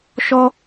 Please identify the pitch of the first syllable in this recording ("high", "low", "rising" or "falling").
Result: high